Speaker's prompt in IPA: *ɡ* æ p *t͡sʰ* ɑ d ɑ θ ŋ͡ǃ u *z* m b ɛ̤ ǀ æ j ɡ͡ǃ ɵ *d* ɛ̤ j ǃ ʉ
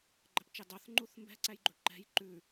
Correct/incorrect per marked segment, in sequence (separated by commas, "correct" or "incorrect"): incorrect, incorrect, incorrect, incorrect